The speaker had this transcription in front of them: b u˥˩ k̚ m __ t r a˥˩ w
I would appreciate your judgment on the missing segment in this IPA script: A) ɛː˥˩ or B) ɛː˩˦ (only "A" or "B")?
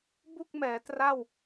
B